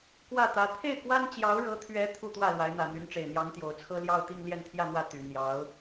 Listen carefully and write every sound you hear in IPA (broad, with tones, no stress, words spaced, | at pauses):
kwä˥˩t̪ä˧˥ t̪ʰe˥˩ɪ̯kwa˥n t͡ɕjɑ˧˥ʊ̯ɻɤ˧˥t̪ʰɥɛ˧˥ t̪ʰu˥˧t̪wä˥˩ lwa˧˥ɪ̯n̪ä˨˩n̪y˧˥nʈ͡ʂe˨˩ɪ̯ n̪jɑ˧˥ŋt̪jo˨˩ʊ̯t͡sʰɤ˥ ljɑ˥˧ʊ̯t̪i˥˧ŋ ljɛ˥˧nt̪ʰjä˥˧n̪wä˥˩ t̪y˨˩ n̪jɑ˧˥ʊ̯